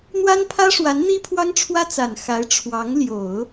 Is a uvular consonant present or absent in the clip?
absent